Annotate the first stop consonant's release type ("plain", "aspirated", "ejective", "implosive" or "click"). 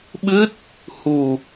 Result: implosive